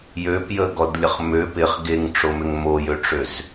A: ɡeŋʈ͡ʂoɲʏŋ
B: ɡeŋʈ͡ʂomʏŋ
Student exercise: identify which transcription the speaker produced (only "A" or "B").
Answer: B